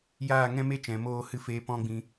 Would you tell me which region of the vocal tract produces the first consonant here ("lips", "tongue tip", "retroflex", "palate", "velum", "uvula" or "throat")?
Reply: palate